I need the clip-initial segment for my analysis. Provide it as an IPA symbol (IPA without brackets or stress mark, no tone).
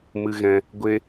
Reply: m